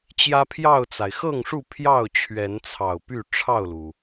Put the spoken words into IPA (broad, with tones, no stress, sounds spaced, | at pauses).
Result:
t͡ɕ j ä˦ pʰ j ɑ˥˨ ʊ̯ t͡s a˩ ɪ̯ x ɤ˥˨ ŋ ʂ u˥˨ pʰ j ɑ˥˨ ʊ̯ t͡ɕʰ ɥ ɛ˨˦ n t͡sʰ ɑ˨˩ ʊ̯ p y˥˨ ʈ͡ʂʰ ɑ˥˨ ʊ̯ l u˩